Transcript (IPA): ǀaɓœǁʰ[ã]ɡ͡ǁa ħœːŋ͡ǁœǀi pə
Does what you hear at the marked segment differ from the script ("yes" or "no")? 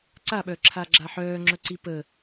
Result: yes